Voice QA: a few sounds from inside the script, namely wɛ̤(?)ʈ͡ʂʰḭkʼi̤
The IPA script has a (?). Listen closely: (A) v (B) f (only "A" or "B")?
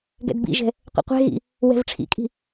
A